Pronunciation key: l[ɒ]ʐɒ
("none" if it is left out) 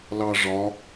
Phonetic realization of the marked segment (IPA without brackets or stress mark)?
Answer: ɑ